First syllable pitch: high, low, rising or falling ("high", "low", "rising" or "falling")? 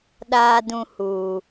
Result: low